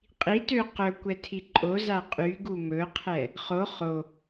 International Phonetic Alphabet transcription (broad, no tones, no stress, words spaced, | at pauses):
qʼitø qɵkʷɛ tʰiǃʼoza qʼyɡu mɵqʰɛ | χo χo